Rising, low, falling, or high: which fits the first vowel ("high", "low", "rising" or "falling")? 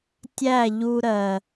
falling